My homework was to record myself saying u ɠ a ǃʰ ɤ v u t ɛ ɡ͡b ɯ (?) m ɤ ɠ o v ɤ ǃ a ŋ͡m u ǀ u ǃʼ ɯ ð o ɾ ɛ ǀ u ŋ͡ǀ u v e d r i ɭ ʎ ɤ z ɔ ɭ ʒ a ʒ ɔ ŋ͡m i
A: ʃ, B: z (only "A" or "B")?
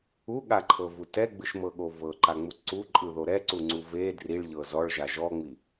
A